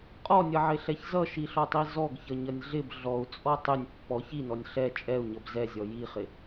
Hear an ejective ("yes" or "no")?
yes